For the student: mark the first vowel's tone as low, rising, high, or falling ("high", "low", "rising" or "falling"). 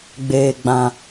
low